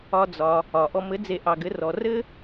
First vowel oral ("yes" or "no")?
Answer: yes